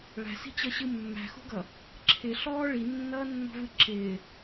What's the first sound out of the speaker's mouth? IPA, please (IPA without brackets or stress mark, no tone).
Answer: ɭ